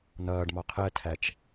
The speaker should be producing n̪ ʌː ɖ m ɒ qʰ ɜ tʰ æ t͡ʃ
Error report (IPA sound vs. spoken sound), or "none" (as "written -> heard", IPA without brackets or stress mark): none